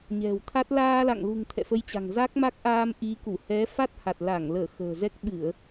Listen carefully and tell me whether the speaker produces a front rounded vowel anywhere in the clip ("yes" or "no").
no